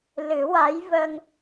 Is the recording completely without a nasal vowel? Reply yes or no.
yes